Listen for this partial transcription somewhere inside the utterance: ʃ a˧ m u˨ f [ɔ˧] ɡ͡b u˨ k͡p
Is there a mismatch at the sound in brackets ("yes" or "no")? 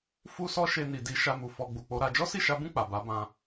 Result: no